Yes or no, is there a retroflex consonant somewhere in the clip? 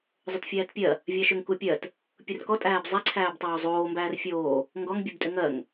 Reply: no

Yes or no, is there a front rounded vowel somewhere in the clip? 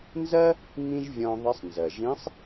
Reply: no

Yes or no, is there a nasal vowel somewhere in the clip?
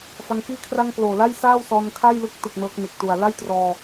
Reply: no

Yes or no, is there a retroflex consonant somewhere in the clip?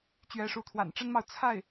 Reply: yes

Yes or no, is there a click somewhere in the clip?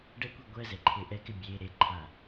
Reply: yes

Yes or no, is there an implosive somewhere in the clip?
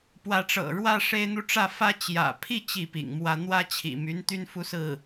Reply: no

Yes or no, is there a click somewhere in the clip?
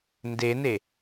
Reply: no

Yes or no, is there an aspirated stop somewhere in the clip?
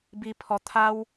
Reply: yes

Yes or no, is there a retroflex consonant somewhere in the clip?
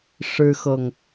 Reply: yes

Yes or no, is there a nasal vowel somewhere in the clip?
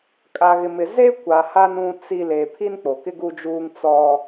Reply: yes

